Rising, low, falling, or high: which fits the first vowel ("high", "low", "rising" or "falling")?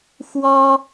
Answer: high